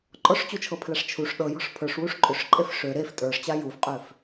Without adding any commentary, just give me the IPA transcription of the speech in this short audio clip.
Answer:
ǃʼ ɔ ʂ t͡ɕ u t͡ʃʰ ɤ pʰ l a ʂ t͡ʃʰ u ʂ ɗ ɤ j ɔ̤ ʂ pʰ ə˞ ʂ w u ʂ ǃʼ ʏ ʂ ǃʼ e f ʂ ø ɾ e f tʼ ə˞ ʂ t͡ɕ a j u f qʼ ø f

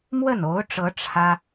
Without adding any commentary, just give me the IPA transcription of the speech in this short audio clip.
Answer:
m w ə˥˩ n o˧˥ ʊ̯ ʈ͡ʂ ɤ˧˥ ʈ͡ʂʰ ä˥

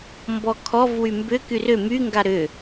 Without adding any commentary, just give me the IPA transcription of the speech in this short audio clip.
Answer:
m b ɔ kʰ ɔ v w y m b ʏ k y r ʏ m y ŋ ɡ a ɾ ʏ

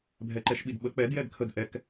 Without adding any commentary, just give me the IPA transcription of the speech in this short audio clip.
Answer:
bʱ ɛ ǃ ɛ ʃ ɓ i d ɓ ə k͡p ɛ d j ɛ d kʰ ə d ʔ ɛ k

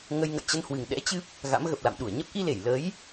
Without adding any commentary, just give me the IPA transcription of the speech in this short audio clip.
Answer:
ŋ ə˧ j ŋ ə̰˧˨ j t͡ɕ ə˧ n h w ɨ˨˩ ŋ ɗ ɛ̰˧˥ t͡ɕ ɨ˦˥ p̚ | ɣ a̰˧˥ m ɣ ə˨˩ p̚ l a̰˧˨ m ɗ u˧˩ ə̯ ɲ ə˦˥ p̚ ʔ i˧ l e˧˩ j l ə˨˦ j

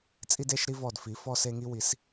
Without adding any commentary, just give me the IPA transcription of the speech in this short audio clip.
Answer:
t͡sʼ i˦ d e˦ ʃ ɾ i˦ v ɔ˧˩ d f i˩˥ f ɔ˦ s e˦ ŋ i˦ w i˩˥ s

